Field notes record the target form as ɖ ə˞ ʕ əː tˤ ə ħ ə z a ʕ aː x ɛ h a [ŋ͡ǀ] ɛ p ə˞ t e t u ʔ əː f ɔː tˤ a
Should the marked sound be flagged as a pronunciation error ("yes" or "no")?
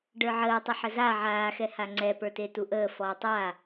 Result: no